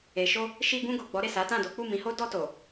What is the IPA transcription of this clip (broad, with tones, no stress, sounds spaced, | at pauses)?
e˨ ʃ o˧ | ʃ i˧ ɡ ũ˧ ɡ o˨ ɡ͡b ɔ˨˦ ɾ e˦˨ s a˨˦ t ã˦˨ d o˨˦ k͡p u˦˨ m ĩ˨˦ h o˦ d ɔ˧ t o˨